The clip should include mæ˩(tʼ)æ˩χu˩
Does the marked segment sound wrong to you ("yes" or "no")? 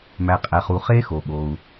yes